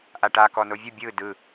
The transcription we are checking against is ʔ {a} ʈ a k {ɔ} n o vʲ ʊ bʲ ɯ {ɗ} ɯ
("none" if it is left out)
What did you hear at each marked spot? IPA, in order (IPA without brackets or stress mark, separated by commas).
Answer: a, ɔ, d